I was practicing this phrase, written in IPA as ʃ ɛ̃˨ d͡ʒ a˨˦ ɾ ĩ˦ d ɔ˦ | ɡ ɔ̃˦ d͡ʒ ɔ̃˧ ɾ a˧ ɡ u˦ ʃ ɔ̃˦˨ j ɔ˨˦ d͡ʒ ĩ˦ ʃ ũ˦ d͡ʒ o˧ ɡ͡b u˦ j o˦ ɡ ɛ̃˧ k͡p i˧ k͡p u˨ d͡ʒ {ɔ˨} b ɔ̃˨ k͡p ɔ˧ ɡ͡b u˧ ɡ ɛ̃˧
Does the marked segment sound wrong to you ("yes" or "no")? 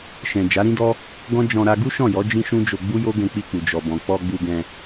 no